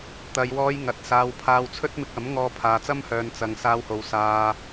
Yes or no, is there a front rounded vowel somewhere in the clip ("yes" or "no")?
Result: yes